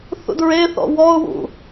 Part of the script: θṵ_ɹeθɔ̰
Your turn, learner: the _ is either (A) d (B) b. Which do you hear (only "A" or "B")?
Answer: A